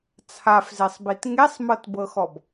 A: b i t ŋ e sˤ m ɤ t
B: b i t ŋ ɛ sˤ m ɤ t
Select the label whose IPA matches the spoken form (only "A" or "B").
A